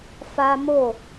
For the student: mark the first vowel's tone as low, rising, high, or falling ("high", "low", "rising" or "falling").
high